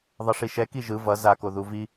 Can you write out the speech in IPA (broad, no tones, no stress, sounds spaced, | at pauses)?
ðˤ ʌ ʂ i ʃ ɛ k i ʒ ɯ v ʌ z a k o ð u v i